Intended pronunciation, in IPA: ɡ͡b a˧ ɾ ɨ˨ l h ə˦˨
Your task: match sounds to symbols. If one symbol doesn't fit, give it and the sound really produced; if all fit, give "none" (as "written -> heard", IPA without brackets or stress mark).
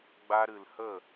none